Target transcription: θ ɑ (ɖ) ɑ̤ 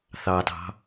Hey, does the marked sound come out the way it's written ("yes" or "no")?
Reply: no